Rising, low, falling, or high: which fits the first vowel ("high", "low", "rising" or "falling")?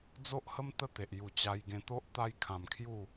high